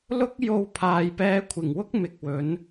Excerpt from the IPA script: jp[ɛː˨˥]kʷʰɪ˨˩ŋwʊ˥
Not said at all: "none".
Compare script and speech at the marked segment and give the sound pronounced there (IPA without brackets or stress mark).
ɛː˧